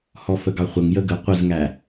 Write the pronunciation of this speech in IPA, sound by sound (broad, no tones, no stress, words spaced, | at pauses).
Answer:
hɔfəɡɑχʷəŋ jəɡə qʷəzŋæ